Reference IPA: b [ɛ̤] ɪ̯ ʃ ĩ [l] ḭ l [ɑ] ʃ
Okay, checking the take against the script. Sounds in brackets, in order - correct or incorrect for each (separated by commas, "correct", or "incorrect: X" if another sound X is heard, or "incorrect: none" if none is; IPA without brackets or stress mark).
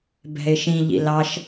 correct, incorrect: ʎ, correct